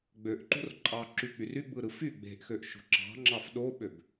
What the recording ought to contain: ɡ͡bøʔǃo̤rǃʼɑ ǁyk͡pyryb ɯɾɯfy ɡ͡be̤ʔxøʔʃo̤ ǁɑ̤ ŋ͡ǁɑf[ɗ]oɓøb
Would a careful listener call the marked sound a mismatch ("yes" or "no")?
no